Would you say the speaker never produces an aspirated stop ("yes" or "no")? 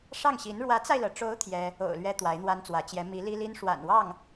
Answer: no